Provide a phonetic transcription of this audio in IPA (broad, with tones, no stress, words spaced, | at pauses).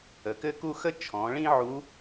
ə˩kɘ˥ku˥ xə˥t͡ʃʰɔ̃˩˧ɭĩ˥ʕu˧˥